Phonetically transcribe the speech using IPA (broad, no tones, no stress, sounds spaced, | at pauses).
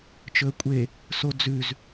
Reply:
t͡ʃ ɵ ə̯ kʷʼ e | s o d͡z ʉ z